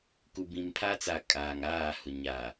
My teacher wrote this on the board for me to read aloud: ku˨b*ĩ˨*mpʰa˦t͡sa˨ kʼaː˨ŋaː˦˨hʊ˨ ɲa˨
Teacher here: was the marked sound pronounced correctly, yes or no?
yes